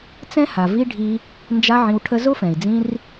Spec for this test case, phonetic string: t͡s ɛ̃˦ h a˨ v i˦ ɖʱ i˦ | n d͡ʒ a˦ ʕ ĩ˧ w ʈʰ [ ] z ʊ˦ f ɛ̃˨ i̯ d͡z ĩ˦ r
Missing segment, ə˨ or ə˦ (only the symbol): ə˦